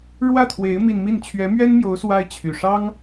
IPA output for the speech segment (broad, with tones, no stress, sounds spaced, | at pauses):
ɻ w ä˥˩ t̪ʰ w e˧˥ ɪ̯ m i˥˧ n m i˥˩ n t͡ɕʰ ɥ ɛ˧˥ m ɥ ɛ˥ n m j o˧˥ ʊ̯ s w a˥ ɪ̯ t͡ɕʰ y˨˩ ʂ ɑ˥ ŋ